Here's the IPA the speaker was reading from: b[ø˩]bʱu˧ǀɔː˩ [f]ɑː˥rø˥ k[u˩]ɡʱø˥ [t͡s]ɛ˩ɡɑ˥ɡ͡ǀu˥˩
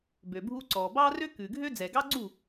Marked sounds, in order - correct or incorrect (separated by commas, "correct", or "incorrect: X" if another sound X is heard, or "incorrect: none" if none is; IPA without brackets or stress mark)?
correct, incorrect: b, incorrect: ʉ˩, incorrect: d͡z